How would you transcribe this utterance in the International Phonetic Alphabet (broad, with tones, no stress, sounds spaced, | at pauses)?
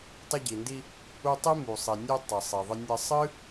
tˤ ə˧ ɟ i˩ n d i˧ | u˧ tˤ i˥ m u˩ sˤ i˩ nʲ u˧ tˤ ə˩ sˤ i˩ ðˤ ə˧ nʲ ə˧ sˤ ɨ˥